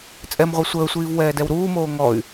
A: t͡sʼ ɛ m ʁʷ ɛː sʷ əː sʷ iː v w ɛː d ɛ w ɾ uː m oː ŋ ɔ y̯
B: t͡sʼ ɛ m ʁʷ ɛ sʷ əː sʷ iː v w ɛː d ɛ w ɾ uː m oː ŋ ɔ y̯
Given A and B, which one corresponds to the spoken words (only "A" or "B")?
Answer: B